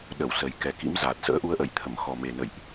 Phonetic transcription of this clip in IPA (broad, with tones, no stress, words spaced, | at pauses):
ɗə˧˩wsə˨˩jkɛ˨˩kḭ˧˥m za˨˩t̚ sə̰ː˧˥ʔu˧ə̯ʔə̰˧˨jt̪ʰə˧˩m xɔ˨˩me˨˩nə̰˧˨jʔ